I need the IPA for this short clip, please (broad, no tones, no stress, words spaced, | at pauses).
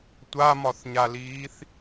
tʷamɒθɲaliːθ